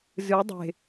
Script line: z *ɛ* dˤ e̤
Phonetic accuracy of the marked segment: incorrect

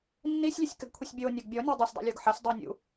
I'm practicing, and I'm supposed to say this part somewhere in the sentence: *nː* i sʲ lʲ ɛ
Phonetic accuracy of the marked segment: correct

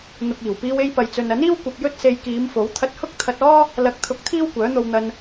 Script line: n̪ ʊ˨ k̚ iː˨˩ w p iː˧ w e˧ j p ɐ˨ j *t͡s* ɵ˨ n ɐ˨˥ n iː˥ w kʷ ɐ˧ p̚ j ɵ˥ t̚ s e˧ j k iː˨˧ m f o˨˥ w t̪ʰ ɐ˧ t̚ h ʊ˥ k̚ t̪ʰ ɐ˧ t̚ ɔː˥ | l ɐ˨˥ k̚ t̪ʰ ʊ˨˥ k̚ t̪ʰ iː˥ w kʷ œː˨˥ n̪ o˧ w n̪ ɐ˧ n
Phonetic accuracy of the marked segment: correct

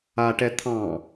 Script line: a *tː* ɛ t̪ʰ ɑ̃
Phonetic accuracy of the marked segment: incorrect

